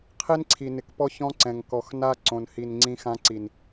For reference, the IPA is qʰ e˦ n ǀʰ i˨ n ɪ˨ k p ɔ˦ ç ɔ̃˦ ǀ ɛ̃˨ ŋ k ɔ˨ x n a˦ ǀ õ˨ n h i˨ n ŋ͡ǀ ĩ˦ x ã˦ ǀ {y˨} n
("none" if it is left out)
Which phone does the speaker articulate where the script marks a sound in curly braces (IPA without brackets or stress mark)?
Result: i˨